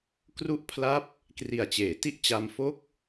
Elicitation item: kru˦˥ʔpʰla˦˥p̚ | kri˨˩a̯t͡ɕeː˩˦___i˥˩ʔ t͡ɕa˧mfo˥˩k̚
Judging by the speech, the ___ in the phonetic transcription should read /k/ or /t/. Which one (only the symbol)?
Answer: t